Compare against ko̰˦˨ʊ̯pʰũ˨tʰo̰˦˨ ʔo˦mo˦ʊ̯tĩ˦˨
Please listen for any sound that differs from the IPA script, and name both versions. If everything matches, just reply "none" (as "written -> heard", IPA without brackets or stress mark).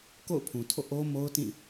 none